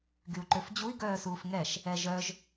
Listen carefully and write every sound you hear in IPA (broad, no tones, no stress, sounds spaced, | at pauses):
ɡ y u̯ ǃ ø f d͡ʑ u i̯ ɡ œː s uː f ŋ ɛ ʃ | ɛ ʒ œ ʒ